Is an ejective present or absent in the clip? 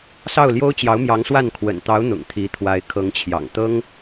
absent